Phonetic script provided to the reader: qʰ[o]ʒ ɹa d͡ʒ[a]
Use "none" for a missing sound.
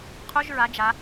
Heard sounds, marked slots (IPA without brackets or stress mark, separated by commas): o, a